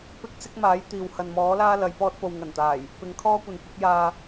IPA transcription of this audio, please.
pɪ˥k̚ sɪ˥k̚maː˨˥jt̪iː˨whɐ˨n mɔː˨˥laː˥ lɐ˨˧j pɔː˧t̚po˨wŋɐ˨˩nt̪aː˨˩j | pɪ˨˧ŋkʰɔː˥kʷɐ˨nkʷɪ˨˥k̚ jaː˧

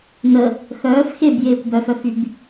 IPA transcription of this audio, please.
nə | xœːf xebjeːkʷ bœfœfyb

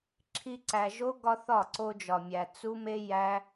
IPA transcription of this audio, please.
ǁʰi˦ǀæ˧ ʒo˦ ɡɒ˦θɒ˦˨ ǀo˧d͡ʒɒ˨mʲæ˨ t͡su˦me˦ jæ˦

